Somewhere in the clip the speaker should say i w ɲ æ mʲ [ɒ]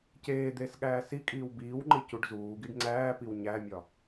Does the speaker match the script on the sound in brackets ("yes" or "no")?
yes